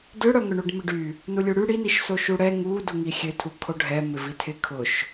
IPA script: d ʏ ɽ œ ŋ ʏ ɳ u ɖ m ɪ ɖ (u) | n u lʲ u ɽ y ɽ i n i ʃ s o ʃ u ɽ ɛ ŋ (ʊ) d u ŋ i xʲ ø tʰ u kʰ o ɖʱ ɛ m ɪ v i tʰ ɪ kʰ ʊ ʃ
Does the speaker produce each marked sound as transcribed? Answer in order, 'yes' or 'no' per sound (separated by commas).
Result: no, no